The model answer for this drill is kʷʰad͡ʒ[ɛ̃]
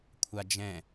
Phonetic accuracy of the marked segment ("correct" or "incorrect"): correct